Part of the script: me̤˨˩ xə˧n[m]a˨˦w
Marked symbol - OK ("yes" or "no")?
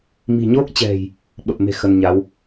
no